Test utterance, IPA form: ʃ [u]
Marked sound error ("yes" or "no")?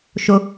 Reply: yes